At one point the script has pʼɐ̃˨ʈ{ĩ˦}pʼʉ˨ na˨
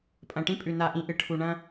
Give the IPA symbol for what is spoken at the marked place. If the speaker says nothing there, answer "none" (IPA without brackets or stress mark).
ĩ˦